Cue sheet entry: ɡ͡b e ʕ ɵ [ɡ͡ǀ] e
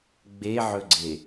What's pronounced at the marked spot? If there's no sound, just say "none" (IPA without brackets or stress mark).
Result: ɡ͡ǀ